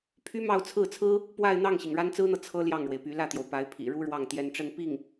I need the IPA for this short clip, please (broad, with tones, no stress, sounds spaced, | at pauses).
pʰ y˥ m ɑ˥˧ ʊ̯ t͡sʰ ɹ̩˥˩ t͡sʰ ɹ̩˥ | p w a˥˧ ɪ̯ n̪ ɑ˥˩ ŋ ɕ i˩ ŋ ɻ a˥ n t͡s ɹ̩˥ n̪ ɤ˨ t͡sʰ ɤ˥ l j ɑ˥˩ ŋ ɻ w e˩ ɪ̯ p y˧˥ l ä˥˩ t̪ j o˩ ʊ̯ p a˧˥ ɪ̯ pʰ ḭ˨˩ ɻ u˥ ɻ w ɑ˥˩ ŋ t̪ j ɛ˧˥ n ʈ͡ʂ ə˥˧ n p i˥˩ ŋ